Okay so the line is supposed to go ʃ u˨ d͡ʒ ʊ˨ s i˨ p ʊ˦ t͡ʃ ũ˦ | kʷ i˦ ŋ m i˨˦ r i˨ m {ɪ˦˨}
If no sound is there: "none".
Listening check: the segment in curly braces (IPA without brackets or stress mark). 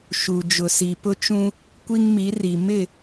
ɪ˦˨